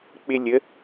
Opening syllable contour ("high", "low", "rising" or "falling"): high